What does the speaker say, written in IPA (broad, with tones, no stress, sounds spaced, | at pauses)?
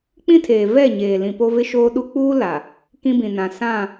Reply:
k͡p ĩ˦ tʰ eː˨ v ɛ˦˨ ɲ eː˨ l ĩ˨ p o˦ v ɪ˦ ʃ oː˦ ɗ u˦ k͡p uː˦ l a˨ | k ĩ˦ b ĩ˨ n ã˨ s ã˦˨